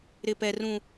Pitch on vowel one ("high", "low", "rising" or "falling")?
high